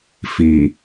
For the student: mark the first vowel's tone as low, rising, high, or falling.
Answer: low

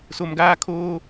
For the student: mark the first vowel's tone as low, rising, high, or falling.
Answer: low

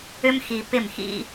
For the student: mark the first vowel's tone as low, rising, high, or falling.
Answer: high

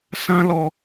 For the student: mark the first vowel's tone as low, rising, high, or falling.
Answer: high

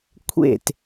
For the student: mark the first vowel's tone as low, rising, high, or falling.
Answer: falling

